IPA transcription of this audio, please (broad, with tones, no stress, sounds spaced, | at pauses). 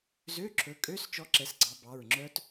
z ø˧˥˧ ǁʰ ɵ˨˦ kʼ ø˧˥˧ s t͡ʃ ɔ˦˥ ǁ ɛ˨˦ s ɡ͡ǀ ɑ˨˦ b ɑ˩˧˩ ɹ ŋ͡ǁ œ˦˥ t